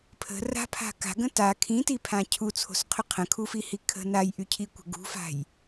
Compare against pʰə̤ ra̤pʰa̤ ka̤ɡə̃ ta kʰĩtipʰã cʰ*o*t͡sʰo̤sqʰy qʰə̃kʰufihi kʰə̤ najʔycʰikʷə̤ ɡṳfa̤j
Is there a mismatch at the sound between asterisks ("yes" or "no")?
yes